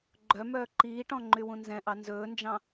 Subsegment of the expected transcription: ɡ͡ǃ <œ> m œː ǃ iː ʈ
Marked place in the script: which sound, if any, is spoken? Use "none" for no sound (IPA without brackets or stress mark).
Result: œ